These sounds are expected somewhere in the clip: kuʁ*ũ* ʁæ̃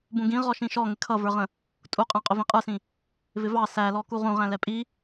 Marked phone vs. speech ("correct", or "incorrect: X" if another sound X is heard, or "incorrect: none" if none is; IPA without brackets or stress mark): correct